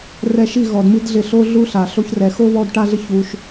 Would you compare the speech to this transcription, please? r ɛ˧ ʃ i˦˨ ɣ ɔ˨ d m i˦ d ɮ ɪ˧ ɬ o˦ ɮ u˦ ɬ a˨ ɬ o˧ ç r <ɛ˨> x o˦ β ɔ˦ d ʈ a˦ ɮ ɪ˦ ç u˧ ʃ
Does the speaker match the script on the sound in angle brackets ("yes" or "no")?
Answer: yes